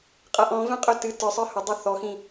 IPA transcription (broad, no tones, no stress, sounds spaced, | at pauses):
qʼ ɐ ʔ ɔ̃ v ɛ̃ qʼ ɵ t ɨ t ə˞ sˤ ə˞ h ɵ dˤ ɵ θ ɔ x ĩ